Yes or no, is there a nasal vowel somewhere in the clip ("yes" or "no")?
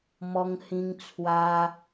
yes